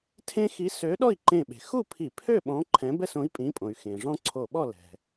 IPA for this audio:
tʰ ẽ˦ x i˨˥ s ø˨˥ ɗ ɔ˥˨ i̯ ǃ ẽ˧˩ ɓ e̤˩ x u˥˨ pʰ i˧˩˧ pʰ ø˥˨ ɓ ɔ̃˨˥ ǃʰ ɛ̃˨˥ b ɛ˥˨ s õ˨˥ i̯ pʼ ĩ˨˥ pʼ õ˩ y̯ x ẽ˩ ʐ ɔ̃˦ ǀʰ o˧˩ ɓ ɔ˥˨ l ɛ̤˩

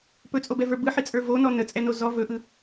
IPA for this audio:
p ɵ t͡sʼ o b ɛ v ə˞ b ɯ ħ i t͡sʼ ə˞ v o n ɔ n ə t͡sʼ ɛ n o z ɔ v ɵ ʔ ɯ

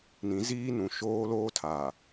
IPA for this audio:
n ĩ˨˦ z iː˦ n ũ˨ ʃ oː˦ l oː˦ tʰ a˨

